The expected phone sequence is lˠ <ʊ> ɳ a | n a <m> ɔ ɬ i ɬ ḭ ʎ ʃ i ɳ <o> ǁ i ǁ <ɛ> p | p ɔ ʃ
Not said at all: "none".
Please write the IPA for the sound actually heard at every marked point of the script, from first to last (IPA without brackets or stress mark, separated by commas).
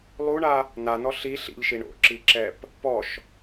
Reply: u, n, o̰, ɛ